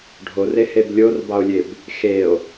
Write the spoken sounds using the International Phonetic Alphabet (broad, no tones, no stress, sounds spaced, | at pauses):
ɖʱ o r e h e b lʲ o r b ɑ o̯ lʲ e b | x e o̯